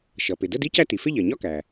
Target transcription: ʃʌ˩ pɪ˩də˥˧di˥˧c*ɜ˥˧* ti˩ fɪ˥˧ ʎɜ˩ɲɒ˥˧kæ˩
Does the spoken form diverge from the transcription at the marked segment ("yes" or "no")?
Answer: yes